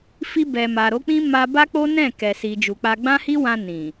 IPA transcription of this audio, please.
fi˧bɛ˨ ma˨ɾo˨˦k͡pĩ˦ ma˧ba˦k͡po˦nɛ̃˦˨ kɛ˨si˨ d͡ʒu˨k͡pa˧ ɡ͡bã˦hi˦wã˧ nĩ˨

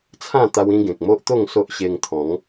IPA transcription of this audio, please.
t͡sʰã˥˧ t̪a˦wĩ˦ɡẽ˨k̚ mo˦ʔt̪o˥˧ŋ so˦ʔɕe˧ŋ t̪ʰɔ̃˨˦ŋ

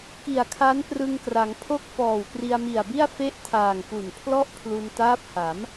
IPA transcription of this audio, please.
ki˨˩a̯kʰa˦˥n prɯ˧ŋkra˩˦ŋpʰo˥˩k̚ fɔː˨˩wkri˧a̯mi˨˩a̯bi˥˩a̯ fe˥˩ʔtʰaː˨˩ŋ pu˨˩n pʰlɔ˥˩ʔpʰlu˧ntaː˦˥p̚ha˩˦m

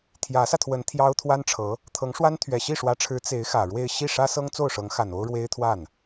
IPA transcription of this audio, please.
t̪ʰjä˧˥sä˧t̪ʰwə˧˥n t̪ʰjɑ˥ʊ̯ t̪ʰwa˥nʈ͡ʂʰɤ˧˥ | t̪ʰɤ˧˥ŋ ʂwa˥n t̪ʰɥɛ˨˩ɕi˥˩ʂwä˧˥ʈ͡ʂʰɻ̩˧˥ t͡se˧˥ɪ̯ xä˨˩ɻwe˥˧ɪ̯ ɕi˥˩ʂä˥sɤ˥ŋ t͡so˥˩ʊ̯ʂɤ˧˥ŋxa˨˩n o˥ʊ̯ɻwe˥ɪ̯t̪ʰwa˥˩n

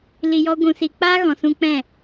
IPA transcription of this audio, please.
li˧jɔ˦ɡʷũ˧si˧ k͡paː˦ɣɔ̃˨sũ˧ k͡pɛ̃˦˨

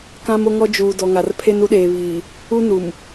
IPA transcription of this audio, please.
kã˦mo˦ŋɔ˦ d͡ʒuː˨ dɔ˨ŋa˨r pʰe˦nu˦ɗeː˨βiː˨ | u˦nu˨m

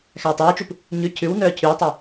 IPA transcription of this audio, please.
xæːtˤœːt͡ʃup | ɲʉ cʰʉwnœː cʰywtˤy

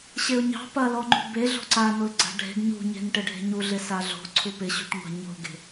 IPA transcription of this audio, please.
ɕeʊ̯ɲɑ̤ pɐ lɔŋ͡ǃṳbe ɮo̤ǀa nolɡ͡ǀa̤ɖʱe̤ɡ ɲṳɲe̤n ʈɪɖʱe̤ɲu ɮɪsaɮo̤ ǀʰupɪɕṳʈŋʷa̤ ɲo̤ɡe̤

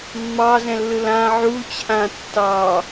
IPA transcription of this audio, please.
mːɑzɛ̃lːɯ lã ʕut͡ɕʰã tːɑ

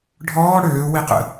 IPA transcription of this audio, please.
ɖʱɔː ɽøː wiqə̰

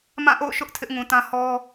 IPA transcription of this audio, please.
mã˦˨ʔo̰˦˨ʊ̯ ʃʊ˦ʔ tʰɪ˦ʔŋũ˨ tã˦hɔ˦

